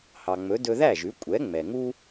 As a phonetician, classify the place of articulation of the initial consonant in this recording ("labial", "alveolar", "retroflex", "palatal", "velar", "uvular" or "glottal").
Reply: glottal